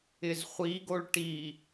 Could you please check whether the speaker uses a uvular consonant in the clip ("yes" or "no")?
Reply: yes